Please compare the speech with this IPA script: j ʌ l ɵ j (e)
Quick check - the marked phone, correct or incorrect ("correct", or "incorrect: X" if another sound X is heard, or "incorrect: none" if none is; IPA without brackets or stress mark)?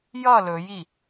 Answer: incorrect: i